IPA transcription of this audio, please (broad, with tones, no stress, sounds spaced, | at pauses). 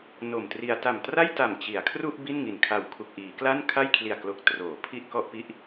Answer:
n o˨˩ m t r i˧ a̯ t a˨˩ m t r a˥˩ j t a˨˩ m t͡ɕ i˩˦ a̯ kʰ r u˥˩ ʔ b i˥˩ n ŋ i˨˩ n kʰ a˨˩ w kʰ u˨˩ k̚ ʔ iː˩˦ k l a˥˩ n kʰ a˥˩ j kʰ l i˨˩ a̯ k l o˨˩ k̚ t r oː˩˦ pʰ i˥˩ ʔ k ɔ˥˩ ʔ p i˥˩ ʔ